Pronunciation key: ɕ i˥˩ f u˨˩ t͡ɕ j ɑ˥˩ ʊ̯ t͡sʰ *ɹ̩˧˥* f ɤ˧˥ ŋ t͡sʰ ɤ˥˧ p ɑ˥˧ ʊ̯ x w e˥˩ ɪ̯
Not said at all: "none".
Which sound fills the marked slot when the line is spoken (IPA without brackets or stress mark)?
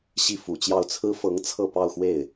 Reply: ɹ̩˥